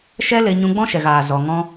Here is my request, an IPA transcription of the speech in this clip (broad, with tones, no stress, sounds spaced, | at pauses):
ʃ ɛ˦ l e˧ ɲ ũ˧ ɡ͡b ɔ̃˦ ʃ ɛ˨ ɣ aː˨ z ɔ˧ ŋ ɔ̃˦